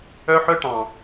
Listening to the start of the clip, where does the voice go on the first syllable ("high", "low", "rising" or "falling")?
high